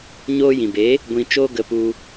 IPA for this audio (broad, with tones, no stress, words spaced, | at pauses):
ɲoː˧jĩ˨be˨˦ | ɡʷĩ˧t͡ʃoː˦ ɡə˧pu˧